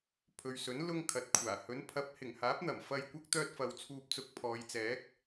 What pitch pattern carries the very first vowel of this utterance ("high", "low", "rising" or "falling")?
low